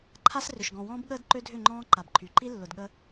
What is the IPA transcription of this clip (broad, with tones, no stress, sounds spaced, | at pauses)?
ǃʰ a˦ s r ʏ˨ ʃ ɡ ɔ̃˨ w ɔ̃ː˦ b ɠ əː˦ d ǃ ø˦ dʱ ʏ˦˨ ŋ͡ǃ ɔ̃ː˦ ǃ a˨ b ǃʰ y˨ ǃ i˦ lː ʊ˨ d ɠ ə˦